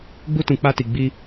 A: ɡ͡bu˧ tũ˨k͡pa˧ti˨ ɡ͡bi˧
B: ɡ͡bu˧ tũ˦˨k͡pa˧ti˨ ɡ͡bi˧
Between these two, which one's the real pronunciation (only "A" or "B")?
A